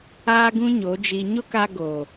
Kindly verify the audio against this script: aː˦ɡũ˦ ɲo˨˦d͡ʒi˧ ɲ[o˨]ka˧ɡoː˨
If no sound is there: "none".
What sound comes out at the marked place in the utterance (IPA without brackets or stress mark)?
o˦